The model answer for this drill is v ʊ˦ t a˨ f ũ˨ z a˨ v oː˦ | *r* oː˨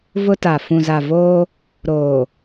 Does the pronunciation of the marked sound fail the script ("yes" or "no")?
yes